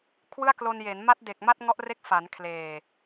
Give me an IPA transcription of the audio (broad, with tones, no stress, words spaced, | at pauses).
kʰwɯ˥˩a̯klo˧nje˩˦n ma˦˥t̚de˨˩k̚ ma˥˩t̚ŋɔ˦˥ʔre˦˥k̚ fa˩˦nkʰleː˨˩